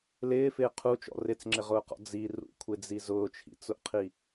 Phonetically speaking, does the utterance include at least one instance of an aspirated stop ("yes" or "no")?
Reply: yes